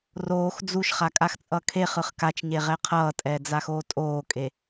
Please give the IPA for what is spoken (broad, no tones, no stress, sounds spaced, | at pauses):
r oː x d͡z u ʃ χ a kʼ a x t͡sʼ ʌ kʰ e χ ɯ χ k a t͡ʃ ɲ e ʁ ɛ qʰ ʌː tʼ ɛː d͡z a x oː tʼ oː kʼ e